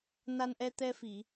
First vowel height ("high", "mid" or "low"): low